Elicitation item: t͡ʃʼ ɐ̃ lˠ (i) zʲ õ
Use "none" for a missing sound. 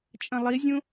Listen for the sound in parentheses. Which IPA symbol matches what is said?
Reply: i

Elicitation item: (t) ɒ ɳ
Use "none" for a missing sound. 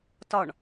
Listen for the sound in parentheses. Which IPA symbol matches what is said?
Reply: t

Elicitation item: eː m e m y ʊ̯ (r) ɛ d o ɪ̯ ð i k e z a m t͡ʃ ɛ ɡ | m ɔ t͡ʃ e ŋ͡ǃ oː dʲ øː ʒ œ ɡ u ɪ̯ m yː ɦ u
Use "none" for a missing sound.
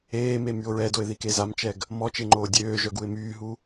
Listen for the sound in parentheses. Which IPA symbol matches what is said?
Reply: ɹ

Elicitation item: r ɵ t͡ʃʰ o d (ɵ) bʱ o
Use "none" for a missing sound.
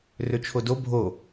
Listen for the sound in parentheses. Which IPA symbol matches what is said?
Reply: o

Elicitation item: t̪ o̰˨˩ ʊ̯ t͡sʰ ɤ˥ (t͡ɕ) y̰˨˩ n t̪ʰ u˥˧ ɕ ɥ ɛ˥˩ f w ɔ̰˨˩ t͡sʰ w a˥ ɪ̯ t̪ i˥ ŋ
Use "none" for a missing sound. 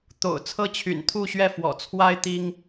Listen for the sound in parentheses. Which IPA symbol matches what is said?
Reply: t͡ɕʰ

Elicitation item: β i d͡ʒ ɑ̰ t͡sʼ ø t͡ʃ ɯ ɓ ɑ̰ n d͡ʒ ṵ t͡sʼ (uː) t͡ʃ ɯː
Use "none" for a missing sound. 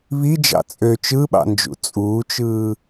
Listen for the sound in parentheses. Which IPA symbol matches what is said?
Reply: uː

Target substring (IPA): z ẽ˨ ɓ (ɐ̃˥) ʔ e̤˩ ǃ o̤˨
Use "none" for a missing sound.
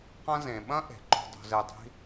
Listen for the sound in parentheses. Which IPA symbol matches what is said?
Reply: ɐ̃˥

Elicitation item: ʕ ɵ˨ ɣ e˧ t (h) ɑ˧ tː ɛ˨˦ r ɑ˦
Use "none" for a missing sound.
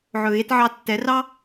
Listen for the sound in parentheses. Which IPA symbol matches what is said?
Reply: ʕ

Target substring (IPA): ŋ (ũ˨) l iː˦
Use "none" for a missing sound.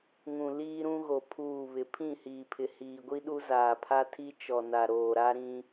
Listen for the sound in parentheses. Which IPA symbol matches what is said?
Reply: ũ˨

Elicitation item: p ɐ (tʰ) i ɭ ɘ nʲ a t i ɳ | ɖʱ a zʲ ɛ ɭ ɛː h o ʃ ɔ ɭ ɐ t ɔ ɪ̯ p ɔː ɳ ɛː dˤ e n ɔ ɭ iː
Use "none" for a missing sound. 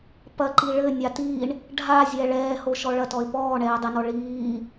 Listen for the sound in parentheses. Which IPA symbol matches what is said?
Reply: ǃ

